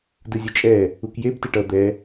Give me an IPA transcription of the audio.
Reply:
d ɯ zʲ ɯ t͡ʃʼ ɛ | u k j e b t e ʈ ʌ d̪ ɛ

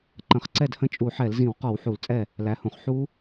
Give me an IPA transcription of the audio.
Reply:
ǃ ə̃˧˩˧ χ ǀ ɛ˥˩ d h ə̃˦˥ t͡ʃʼ u˧˩˧ ħ ɛ˧˩˧ l z ĩ˧˩˧ w q ɔ˧˩˧ w ħ u˧˩˧ l t͡sʼ ɛ˥˩ | l æ˩˥ h ũ˨˩ χ ħ u˦˥

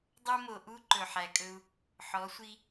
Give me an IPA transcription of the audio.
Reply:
dˤ o˦ m o˨ ʔ u˦ ǃ ɵ˨ ħ æ˨ kʼ ɵ˦ u̯ | ħ ɔ˨˦ sʷ i˦

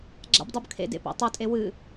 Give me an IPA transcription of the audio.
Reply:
ɡ͡ǁ a̰ b dˤ u b kʰ ḛ d ḛ p a̰ tˤ o tʼ e w ɨ

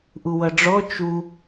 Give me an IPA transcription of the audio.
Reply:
ʔ u w ʌ ɖ͡ʐ ɔ t͡ʃ u

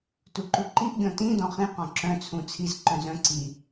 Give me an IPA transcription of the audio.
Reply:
t u ǃ u ǃ i ʔ ɡʲ ɔ̃ t ĩ d ɔ̃ χ ĩ q ɔ̃ ǁ œ̃ t͡sʰ ũ t͡sʰ i z ǃ œ̃ z œ̃ ǀ i

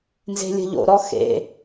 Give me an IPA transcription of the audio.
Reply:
n z e̤ lʲ ə̤ ʎ o̰ ɾ ɔ x ḛ

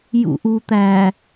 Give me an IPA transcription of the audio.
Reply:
j ṵ ʔ u t̪ æ

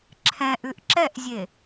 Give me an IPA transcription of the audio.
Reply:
ǁʰ ɛ̃ ʔ ʉ ʔ ǁ ɛ ʔ zʲ e

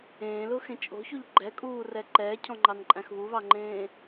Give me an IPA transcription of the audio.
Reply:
ẽː l ʊː x ẽ t͡ʃʼ o̤ ç u ʎ ɡ͡ǃ ɛ kʼ uː r ɛ ǃ ɛː cʰ ɔ̃ ŋ͡ǃ ɑ n ǃʼ æ̃ x β u β ɑ ŋ͡ǃ ẽː

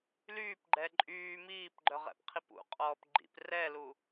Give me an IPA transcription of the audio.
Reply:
l yː p ɡ͡ǃ ɛ ǃʼ yː m iː p ɡ͡ǃ œ ʁ ɛ̰ p qʰ i p ṵ qʼ ɔː p ɡ͡ǃ ḭ p r ɛ l u

